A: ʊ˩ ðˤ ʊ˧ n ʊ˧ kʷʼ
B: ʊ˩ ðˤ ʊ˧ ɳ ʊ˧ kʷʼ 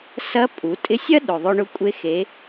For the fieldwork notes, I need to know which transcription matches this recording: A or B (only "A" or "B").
B